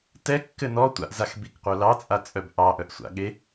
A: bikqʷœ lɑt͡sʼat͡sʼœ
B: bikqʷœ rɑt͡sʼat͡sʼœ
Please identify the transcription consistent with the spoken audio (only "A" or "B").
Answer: A